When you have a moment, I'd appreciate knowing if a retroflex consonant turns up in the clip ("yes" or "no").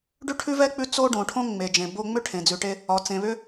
yes